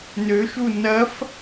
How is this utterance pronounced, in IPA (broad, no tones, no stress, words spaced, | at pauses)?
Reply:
nøʃu nɐf